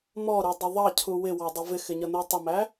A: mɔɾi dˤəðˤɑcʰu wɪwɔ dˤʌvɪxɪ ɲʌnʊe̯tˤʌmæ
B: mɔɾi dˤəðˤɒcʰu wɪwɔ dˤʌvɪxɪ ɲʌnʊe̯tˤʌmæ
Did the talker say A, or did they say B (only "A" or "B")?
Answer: A